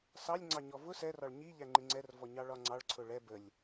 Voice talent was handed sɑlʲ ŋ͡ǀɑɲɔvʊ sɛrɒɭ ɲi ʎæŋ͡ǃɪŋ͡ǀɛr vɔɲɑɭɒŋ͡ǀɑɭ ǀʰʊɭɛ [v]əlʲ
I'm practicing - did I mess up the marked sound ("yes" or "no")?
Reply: yes